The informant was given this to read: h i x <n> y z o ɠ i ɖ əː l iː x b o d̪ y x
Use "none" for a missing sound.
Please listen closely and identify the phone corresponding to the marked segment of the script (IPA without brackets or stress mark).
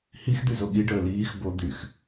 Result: d̪